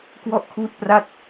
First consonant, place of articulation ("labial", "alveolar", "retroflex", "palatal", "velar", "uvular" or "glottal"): velar